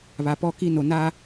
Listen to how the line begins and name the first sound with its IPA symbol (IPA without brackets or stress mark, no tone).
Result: β